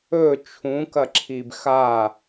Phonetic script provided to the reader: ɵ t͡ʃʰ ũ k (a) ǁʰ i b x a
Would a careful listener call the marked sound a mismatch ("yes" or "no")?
yes